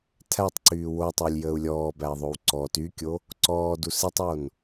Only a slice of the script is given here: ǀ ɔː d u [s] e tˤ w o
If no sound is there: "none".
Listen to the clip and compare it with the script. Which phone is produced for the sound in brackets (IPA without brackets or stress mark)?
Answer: s